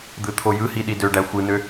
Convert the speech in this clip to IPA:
d̪ɯt̪ʰojɯhi ɗidøɖæ xʷɯnø

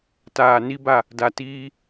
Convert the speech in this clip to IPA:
taː˨ni˦ba˦˨ | da˨tiː˦

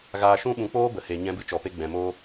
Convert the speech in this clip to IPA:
ɣaː˧ʃũ˦ ɓũ˧k͡poː˦ bə˨he˨ ɲɛ̃˧bɨ˧t͡ʃɔ˨pe˧ ɡ͡bɛ̃˨moː˦

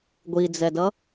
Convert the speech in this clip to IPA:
ɡʷid͡zɛdʌ

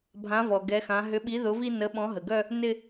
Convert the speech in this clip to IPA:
bʱã˨˥ vɔ˩ɡɛ˨˥xã˨˥ ɦʏ˨˥ɓi˨˥ ðʊ˨˥vi˥˧ nə˨˥ɓɔ̃˨˥ɦə˩ɡœ˥˧ | nɪ˥˧

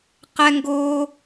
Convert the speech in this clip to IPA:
qɛ˦ŋɡoː˦

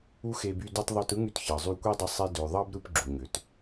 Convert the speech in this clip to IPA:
u˦xe˧by˧ dy˧tˤ ðˤu˧tɯ˦ŋy˧t çɑ˨zˤy˧kʷi˦dˤɯ˧ sˤe˧ dø˨ ðˤɑ˦bɾɯ˧pɡ͡ǁu˨ɲø˨t

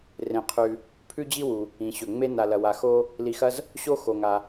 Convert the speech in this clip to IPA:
rẽ˩qʰʉ˩ | pʰʉ˥ d͡ʑi˥wu˩ | ĩ˩ɕɵ˩ŋ͡me˥ na˩lɐ˩wa˩ xo˥ | li˩xɐ˥z | ɕo˥ xo˩ŋa˩

